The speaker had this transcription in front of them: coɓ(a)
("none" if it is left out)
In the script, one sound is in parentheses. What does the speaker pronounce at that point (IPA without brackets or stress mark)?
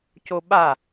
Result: a